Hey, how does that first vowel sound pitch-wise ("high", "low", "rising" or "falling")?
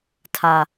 high